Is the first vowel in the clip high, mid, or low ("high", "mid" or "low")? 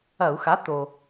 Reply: low